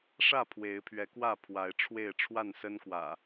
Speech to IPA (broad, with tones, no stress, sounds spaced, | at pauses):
ʂ ä˥˨ pʰ w e˨˦ ɪ̯ pʰ ɥ ɛ˨˦ k w ä˥˨ pʰ w a˨˦ ɪ̯ ʈ͡ʂʰ w e˥˨ ɪ̯ ʈ͡ʂʰ w a˥˨ n s ə˦ n k w ä̰˨˩